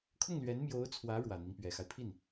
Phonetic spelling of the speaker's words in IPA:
kʰ ʊ˥˩ ŋ l ɥ ɛ˧˥ n m j o˧˥ ʊ̯ t͡sʰ w ä˧˥ ɻ w ä˨˩ n̪ i˦ ŋ p ɥ ɛ˨˩ x a˦ ɪ̯ pʰ i˥˩ n

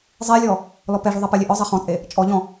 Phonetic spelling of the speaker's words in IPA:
zˤ e lʲ ɔ | l ɔ p ɛ ʐ u ðˤ ɐ p ɐ lʲ e ʔ ɔ zˤ e χ ɔ̃ t͡sʼ e | t͡ʃʼ ɔ ʎ ɔ̃

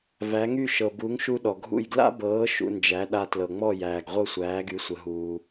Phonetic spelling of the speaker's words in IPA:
v æ˩˥ ŋ y˥˩ ʃ ɤ˩ b u˩˥ ŋ ʃ u˧ ɗ ɔ˩ ɡʱ ṵ˥˩ j ɡ l a̰˥ b ɤː˩˥ ʃ ṵ˧ n d͡ʒ æ˩˥ ɗ a˧ t l ɤ˩ ŋ͡m ɔ˥˩ j æː˩ ɡ ʁʷ ɤ˥˩ sʷ æː˩˥ ɡ y˩˥ sʷ ə˩ ɦ uː˩

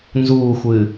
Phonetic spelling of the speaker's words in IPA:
n z uː xʷ ɨː

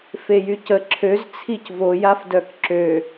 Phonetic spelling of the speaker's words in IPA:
f e j y c ə ǁʰ ø z t͡sʰ i c v o j a f d œ k ǁ ø

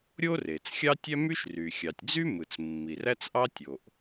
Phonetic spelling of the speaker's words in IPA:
ɾʲ o˥ r e˩ t͡s xʲ ɑ˥ tʲ æ˥ m y˥ ʃ r y˩ xʲ ɑ˩ tʲ d͡z y˥ m ɯ˩ t͡s mː i˩ r æ˥ t͡s ʔ ɑ˥ tʲ o˩ ʔ

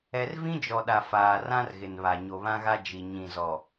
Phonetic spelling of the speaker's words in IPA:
ɛ˨ r v ĩ˦ d͡ʒ ɔ˨ ɗ a˨ f aː˨ r ã˦ r ɣ ɪ˨ n β a˨ ɲ o˨ β ã˦ ɣ a˦ d͡ʒ i˨ ɲ ĩ˨ z ɔ˨

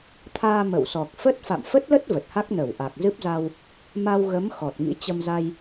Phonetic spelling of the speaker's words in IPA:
t̪ʰ aː˧ m ə̰˧˨ w s ɔ˨˩ k̚ f ə˦˥ t̚ f a̰˧˨ m f ə˦˥ t̚ l ə˦˥ t̚ v ə˨˩ t̚ h a˦˥ k̚ n ə˧˩ w ʔ a˨˩ k̚ z ɨ˦˥ p̚ z a˧ w | m a˧ w ɣ ə˨˦ m x ɔ˨˩ t̚ ŋ ḭ˧˥ t͡ɕ ə˧ m z a˧ j

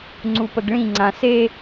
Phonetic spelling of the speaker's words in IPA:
ŋ͡ǀ u p ə ɡ ɭ ĩ ŋ͡ǀ ã s e

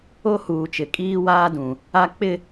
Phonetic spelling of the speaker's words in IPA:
o˦ h uː˨ t͡ʃ ɪ˨ kʼ iː˦ w aː˦ d ũ˨ | a˦ k͡p ɪ˦˨

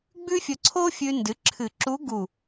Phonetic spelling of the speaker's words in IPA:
ɡ͡b ʉ˥ fʲ ɵ˧ ǀʰ o˥ fʲ ʉ˧ n d ɨ˩˥ ǁʰ ɨ˨˩˦ ǁ u˧˥ ɡ u˧˩

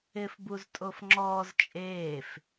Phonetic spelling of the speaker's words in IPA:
ɪː f b u z tʼ o f ŋ͡ǁ ɔː z t͡ʃʼ eː f

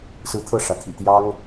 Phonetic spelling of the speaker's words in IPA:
s ɹ̩˦ t̪ʰ ɤ˥˨ ʂ ä˩ t̪ʰ ḭ˨˩ t̪ j ɑ˦ ŋ

